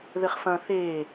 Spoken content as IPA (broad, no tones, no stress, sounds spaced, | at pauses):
ð ɘ χ f ɐ̃ θ e